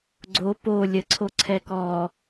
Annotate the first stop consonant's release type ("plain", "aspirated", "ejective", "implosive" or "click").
click